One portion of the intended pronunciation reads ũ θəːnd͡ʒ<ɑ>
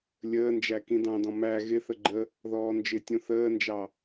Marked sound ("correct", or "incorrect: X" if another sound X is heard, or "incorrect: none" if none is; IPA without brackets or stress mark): correct